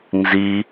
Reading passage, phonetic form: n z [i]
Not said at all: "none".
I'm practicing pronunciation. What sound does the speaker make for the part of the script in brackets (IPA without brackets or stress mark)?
i